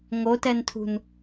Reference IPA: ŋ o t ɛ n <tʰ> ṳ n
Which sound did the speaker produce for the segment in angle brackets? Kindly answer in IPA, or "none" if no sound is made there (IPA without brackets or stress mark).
tʰ